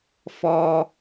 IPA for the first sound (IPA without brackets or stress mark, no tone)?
f